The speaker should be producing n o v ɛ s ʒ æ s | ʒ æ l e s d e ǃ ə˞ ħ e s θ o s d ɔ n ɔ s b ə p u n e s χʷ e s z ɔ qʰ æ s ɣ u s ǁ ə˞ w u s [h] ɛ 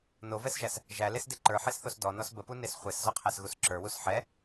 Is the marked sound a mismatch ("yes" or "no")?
yes